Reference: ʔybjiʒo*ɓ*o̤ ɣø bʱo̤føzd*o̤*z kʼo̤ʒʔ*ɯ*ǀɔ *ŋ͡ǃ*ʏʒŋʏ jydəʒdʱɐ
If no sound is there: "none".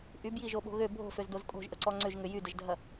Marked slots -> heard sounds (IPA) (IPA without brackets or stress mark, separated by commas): ɓ, o, ə, ŋ͡ǀ